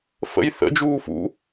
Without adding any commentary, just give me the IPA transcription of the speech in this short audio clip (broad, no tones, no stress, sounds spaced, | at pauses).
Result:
f ə̰ j θ ə̰ d͡ʒ uː f ṵ